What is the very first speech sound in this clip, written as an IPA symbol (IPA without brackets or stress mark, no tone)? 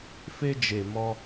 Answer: f